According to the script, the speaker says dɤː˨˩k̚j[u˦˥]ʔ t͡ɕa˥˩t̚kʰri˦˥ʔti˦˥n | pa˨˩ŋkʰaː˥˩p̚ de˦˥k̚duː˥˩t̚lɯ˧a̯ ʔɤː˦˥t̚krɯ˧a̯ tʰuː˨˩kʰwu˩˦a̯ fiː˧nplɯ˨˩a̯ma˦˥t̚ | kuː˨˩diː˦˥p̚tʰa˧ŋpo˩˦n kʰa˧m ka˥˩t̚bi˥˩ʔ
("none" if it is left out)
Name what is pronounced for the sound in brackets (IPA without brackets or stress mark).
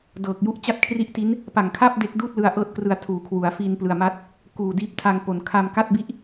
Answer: u˦˥